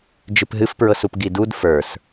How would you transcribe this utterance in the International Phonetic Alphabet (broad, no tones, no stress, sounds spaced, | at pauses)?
d͡ʒ ɨ p ɦ ɨ f p ɹ ɤ s u p ɡ i d u d f ə˞ s